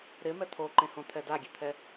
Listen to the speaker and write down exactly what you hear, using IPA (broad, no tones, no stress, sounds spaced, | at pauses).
ɾ ɪ m ɛ t̪ʰ o ǃ ẽ h õ t̪ʰ ɛ d a ɡʲ e t̪ʰ ɛ